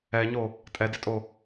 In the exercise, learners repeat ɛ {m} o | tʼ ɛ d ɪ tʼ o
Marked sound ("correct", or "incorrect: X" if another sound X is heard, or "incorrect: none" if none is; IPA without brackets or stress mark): incorrect: ɲ